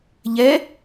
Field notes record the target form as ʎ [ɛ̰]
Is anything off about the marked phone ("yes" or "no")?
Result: yes